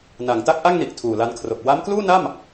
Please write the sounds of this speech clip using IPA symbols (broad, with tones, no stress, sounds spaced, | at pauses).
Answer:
n a˩˦ ŋ t a˦˥ k̚ ʔ a˥˩ ŋ n i˨˩ ʔ tʰ uː˨˩ l a˧ n kʰ r o˨˩ k̚ w a˦˥ m k l uː˥˩ n a˥˩ m